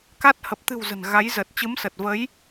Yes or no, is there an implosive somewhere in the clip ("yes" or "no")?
no